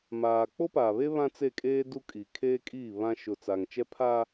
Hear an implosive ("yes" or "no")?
no